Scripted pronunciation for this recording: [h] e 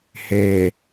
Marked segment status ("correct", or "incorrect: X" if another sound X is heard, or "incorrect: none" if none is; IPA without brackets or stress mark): correct